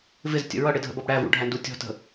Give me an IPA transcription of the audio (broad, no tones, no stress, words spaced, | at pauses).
vɪztʲə̰ ɹʌɽɪdʱə̰bʌb ɽævṵɖʱændu tʲɔ̤tə̤